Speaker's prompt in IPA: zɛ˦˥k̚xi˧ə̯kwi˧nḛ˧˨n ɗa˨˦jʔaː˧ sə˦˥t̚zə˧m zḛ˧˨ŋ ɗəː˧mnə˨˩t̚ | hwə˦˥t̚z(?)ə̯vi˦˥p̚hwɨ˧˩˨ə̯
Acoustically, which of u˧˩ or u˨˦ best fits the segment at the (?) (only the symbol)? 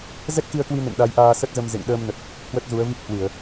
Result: u˨˦